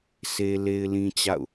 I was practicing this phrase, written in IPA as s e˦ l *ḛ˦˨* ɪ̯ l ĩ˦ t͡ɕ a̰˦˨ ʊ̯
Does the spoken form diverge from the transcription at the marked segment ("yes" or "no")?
yes